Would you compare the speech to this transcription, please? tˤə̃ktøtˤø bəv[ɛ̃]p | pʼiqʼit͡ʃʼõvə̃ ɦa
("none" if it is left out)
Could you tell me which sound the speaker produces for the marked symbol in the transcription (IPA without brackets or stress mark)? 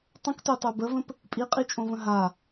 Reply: ə̃